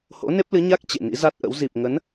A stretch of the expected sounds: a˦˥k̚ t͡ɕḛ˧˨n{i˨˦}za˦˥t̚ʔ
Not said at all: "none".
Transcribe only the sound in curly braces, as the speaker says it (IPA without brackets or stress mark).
ḭ˧˥